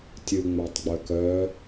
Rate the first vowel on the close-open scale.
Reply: close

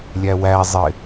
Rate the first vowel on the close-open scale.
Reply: open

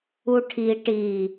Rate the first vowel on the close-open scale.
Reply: close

